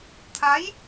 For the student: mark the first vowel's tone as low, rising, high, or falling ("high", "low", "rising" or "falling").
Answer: rising